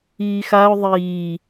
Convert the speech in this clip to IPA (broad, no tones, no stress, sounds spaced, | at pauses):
iː x a ʊ̯ ðˤ iː